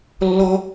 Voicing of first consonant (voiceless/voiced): voiced